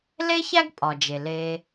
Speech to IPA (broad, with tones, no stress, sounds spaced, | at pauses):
l e˥ ç æ˥ ɡ pʼ ɒ˩ d͡ʒ e˩ l e˧